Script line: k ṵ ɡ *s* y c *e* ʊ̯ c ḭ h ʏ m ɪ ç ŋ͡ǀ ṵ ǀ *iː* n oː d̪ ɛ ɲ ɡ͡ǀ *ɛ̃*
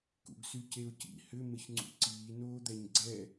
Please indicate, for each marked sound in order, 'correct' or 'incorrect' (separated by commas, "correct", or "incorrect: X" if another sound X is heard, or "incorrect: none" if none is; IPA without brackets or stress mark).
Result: correct, correct, correct, incorrect: ɛ